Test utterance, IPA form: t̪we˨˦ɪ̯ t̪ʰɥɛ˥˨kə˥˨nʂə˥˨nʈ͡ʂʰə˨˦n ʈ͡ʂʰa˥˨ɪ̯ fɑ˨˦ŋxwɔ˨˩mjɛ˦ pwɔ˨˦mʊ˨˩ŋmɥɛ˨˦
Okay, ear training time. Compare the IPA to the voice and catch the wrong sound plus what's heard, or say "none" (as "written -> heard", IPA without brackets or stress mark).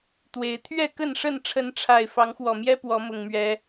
none